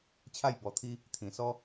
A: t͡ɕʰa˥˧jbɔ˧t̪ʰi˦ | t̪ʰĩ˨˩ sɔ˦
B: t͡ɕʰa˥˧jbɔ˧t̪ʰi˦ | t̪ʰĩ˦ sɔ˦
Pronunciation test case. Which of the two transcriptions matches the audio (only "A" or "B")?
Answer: A